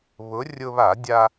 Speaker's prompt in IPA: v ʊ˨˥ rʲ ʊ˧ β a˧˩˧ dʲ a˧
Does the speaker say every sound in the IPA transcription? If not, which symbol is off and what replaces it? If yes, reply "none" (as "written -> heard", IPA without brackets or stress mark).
v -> β